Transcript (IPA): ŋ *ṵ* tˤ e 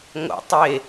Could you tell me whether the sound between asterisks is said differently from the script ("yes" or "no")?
yes